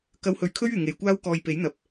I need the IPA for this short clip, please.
k ɐ˧ w h ɵ˨˥ ɥ kʰ ɵ˥ ɥ yː˨˩ ŋ e˨˧ j kʷ aː˥ w k ɔː˧ j p e˨˥ j n̪ ɐ˨˥ p̚

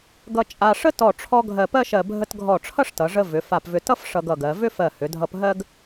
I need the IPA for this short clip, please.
ɡ ʌ˧ t͡ʃʼ a˧ ʂ ə˥ t ɔ˧˩ ʈ͡ʂʰ ɔ˧ ɡʱ ɜ˧˩ p ɜ˥ ʃ ɜ˧˩ bʱ ə˧ t ɡʱ ɔ˧˩ ʈ͡ʂʰ ʌ˥˧ ʂ t ʌ˩˧ ʐ ə˧ v ʏ˩˧ f a˧˩ p v ʏ˧ t ʌ˥ f ʂ ʌ˧ ɡ ʌ˧˩ ɡ ɜ˩˧ v ʏ˥ f ɜ˧˩ h ʏ˩˧ dʱ ʌ˧ p ɦ ɜ˥ ɡ

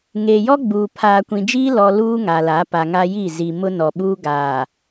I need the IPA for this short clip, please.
ŋ eː˨ j ɔ˦ ɡ͡b uː˨ pʰ aː˨ kʷ ĩ˨ d͡ʒ iː˦ l ɔ˨ l uː˦ ŋ a˨ l a˨˦ p a˨ ŋ a˦ j i˦˨ z i˨ m ʊ˦ n ɔ˨ ɓ uː˦ ɡ aː˨

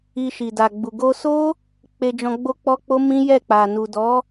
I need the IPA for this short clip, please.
i˧ ʃ i˨ d a˨ ɡ͡b u˨ ɡ o˧ s o˦ | k͡p e˧ d͡ʒ ɔ̃˧ ɡ͡b o˦ k͡p ɔ˦ k͡p o˦ m ĩ˦ j ɛ˦˨ k͡p a˨ n u˨ d ɔ˨˦

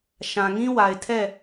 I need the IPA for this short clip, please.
ʃ ã˨ ŋ ĩ˦ w a˨ ɪ̯ tʰ ɛ˦˨

